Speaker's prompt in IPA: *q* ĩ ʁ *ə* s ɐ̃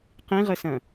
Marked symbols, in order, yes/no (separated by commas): yes, yes